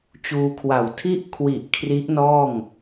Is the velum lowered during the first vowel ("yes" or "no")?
no